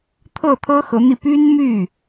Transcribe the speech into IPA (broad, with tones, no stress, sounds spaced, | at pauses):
t̪ʰ ɤ˥˩ t̪ʰ ɤ˥ x ɤ˧˥ n̪ i˧ p y˥ n m y˥˩